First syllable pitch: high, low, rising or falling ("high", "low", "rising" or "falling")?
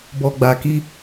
low